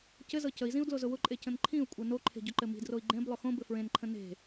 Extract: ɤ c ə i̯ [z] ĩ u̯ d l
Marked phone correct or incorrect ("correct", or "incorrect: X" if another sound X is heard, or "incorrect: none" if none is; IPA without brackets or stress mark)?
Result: correct